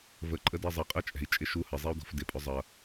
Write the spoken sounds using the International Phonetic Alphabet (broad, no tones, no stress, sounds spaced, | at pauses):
v ə ǃʼ ə d ɪː zˤ ʌ qʼ əː t͡ʃʼ ɛ̤ i̯ t͡ʃʼ ɪ ʃ u h ə zˤ i u̯ d ɔ̤ f d ɪ pʼ ʊ zˤ ʌ